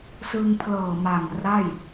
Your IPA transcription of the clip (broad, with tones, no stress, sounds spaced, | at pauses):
s ɯ˧ ŋ pʰ l ɤː˨˩ m a˨˩ ŋ r a˥˩ j